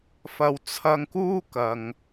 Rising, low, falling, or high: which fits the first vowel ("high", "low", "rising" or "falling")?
low